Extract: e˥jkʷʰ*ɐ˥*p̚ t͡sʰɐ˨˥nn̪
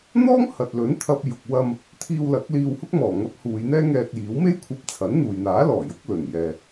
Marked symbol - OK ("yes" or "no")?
no